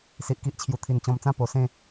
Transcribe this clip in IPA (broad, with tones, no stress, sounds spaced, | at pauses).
s i˨ ʔ k i˦ ʔ t͡ɕʰ j u˨˩ t̪ʰ i˨˩ n t͡ɕ ɔ̃˧ m t͡s ã˥˧ p o˨˩ s ẽ˥˧